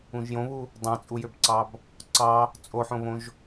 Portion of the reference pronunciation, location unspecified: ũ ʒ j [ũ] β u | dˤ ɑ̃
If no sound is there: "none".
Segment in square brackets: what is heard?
õ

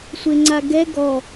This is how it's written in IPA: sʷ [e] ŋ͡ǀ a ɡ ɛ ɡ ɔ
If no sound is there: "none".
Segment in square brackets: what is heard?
e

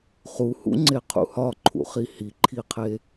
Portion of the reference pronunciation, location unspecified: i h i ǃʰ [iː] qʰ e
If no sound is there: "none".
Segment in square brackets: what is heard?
i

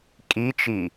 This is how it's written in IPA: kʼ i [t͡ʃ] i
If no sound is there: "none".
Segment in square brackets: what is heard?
t͡ʃ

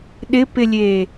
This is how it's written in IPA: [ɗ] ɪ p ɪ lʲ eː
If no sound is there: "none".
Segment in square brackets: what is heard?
ɗ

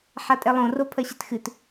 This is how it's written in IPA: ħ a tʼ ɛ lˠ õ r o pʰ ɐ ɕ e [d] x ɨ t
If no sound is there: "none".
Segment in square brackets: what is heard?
t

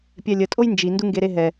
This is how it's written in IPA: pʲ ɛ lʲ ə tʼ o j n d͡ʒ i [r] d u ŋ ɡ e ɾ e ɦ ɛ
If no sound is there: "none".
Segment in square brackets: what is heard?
n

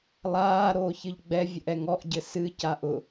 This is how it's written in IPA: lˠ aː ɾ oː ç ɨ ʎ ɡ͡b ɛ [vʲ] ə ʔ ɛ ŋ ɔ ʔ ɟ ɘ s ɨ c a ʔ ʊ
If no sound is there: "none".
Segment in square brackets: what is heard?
vʲ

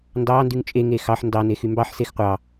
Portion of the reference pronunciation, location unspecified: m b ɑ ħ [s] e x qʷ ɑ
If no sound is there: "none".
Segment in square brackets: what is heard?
s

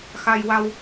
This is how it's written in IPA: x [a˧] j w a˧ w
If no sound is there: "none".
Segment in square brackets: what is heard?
a˧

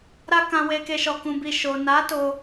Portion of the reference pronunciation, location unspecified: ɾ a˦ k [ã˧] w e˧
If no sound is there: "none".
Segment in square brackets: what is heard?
ã˧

